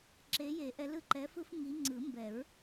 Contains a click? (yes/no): yes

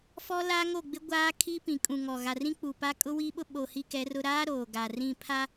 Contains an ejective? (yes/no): yes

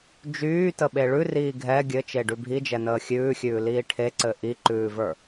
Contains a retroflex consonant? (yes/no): yes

